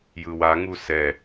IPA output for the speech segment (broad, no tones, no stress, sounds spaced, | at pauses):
j ɯ w a ŋ u s ɛ